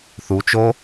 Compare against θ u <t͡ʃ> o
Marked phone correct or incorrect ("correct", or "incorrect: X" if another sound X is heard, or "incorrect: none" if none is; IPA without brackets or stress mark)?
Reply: correct